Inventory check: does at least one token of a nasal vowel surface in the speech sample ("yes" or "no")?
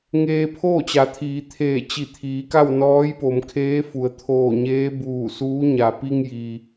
no